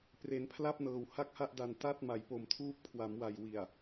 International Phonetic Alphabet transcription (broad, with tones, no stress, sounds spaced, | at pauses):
p r e˩˦ n pʰ l a˥˩ p̚ n ɤː˨˩ w h a˥˩ k̚ h a˥˩ ʔ d a˨˩ n t a˥˩ t̚ m a˨˩ j p o˨˩ m tʰ uː˦˥ p̚ kʰ w a˩˦ m w a˨˩ j w i˨˩ a̯